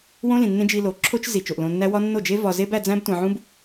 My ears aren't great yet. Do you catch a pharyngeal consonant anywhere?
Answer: yes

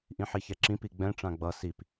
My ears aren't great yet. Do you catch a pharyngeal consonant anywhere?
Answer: yes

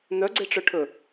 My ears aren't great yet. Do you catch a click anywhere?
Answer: yes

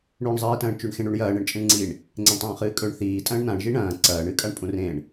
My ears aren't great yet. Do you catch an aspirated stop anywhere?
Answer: no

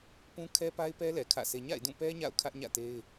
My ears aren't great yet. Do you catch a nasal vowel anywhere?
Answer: yes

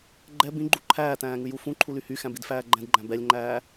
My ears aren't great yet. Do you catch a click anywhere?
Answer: yes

